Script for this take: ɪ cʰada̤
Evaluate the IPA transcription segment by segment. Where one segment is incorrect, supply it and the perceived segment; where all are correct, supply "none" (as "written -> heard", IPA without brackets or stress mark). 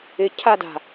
none